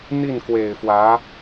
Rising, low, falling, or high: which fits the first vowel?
falling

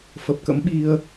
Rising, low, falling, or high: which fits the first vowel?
low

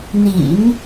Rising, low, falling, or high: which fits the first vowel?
low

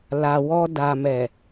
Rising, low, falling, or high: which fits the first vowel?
low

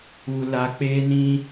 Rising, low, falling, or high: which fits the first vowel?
low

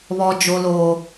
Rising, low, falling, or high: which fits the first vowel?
high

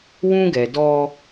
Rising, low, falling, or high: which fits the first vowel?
high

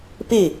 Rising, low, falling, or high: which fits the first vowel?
falling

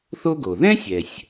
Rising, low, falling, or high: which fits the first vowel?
high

